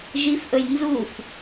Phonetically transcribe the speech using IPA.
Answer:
ʒifʔɵj nzuf

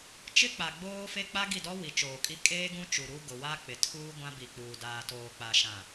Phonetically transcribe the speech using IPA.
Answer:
t͡ʃɪ˦k͡pa˨ ɡ͡boː˦fe˦ k͡pa˦ɡi˦˨dɔ˦ wi˨t͡ʃoː˨kʼi˦ kʼeː˦ɡũ˦t͡ʃu˨ ɾu˦ ɡʊ˨wa˦k͡pɪ˨ tʰuː˦ ɡʷã˦bi˨k͡puː˨ daː˨toː˨k͡pa˨ʃã˨

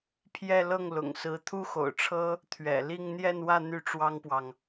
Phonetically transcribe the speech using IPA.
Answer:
pʰjɛ˥˧ lɤ˥˩ŋlʊ̰˨˩ŋsɹ̩˧˥ t̪ʰu˥xo̰˨˩ʊ̯ʈ͡ʂʰɤ˥ | t̪ʰɥɛ̰˨˩li˥˧ŋ n̪jɛ˥˧nwä˥˧ n̪y˥˩ʈ͡ʂwɑ˥ŋpwɑ˨ŋ

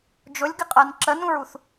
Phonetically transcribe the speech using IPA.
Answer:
d͡ʒʊlʲɡɪqʼɜn ǁənũɹuθ

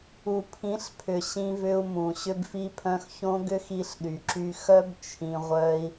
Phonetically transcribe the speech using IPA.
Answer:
u˨pʰĩ˨˦ɬpʰʏ˨ ɕĩ˧vʏ˧u̯ mũ˨ ɕʏ˧bfi˧pʰœ̃˧x çõ˦ɡʏ˦x i˧ɬɗy˨ǁy˧xœ˦b t͡ʃʰĩ˧ʁʷœ˦i̯

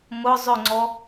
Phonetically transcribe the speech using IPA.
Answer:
mʊ zˤʏŋ͡ǀɔ

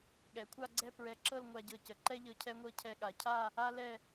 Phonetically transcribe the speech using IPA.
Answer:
ɠɛ˩˧kʷʰa˥˧ɡ͡ǀɛ˥˧ pɹɛ˧˩ǁɤ˥˧lŋʷa˧ɟɤ˧˩ cə˩˧ǃɛ˥ʎɤ˧ cʰɛ˧ŋʷɤ˧ cʰɛ˧ɠa˩˧ cʰa˥˧ | a˥lɛ˥˧

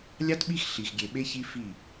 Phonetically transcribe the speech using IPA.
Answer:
lʲɑ˦tɓi˦x ɬi˨xɡʲe˨ɓe˦çi˦ fi˦˨

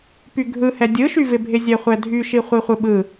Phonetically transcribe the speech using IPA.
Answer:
pyɡʱɯhɛ dʲɯʃyvɪbʱɪ zʲɛχʷɛdʱyʃi χʷiχʷɯɓɯ

